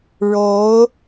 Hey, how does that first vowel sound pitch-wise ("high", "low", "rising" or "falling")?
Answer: rising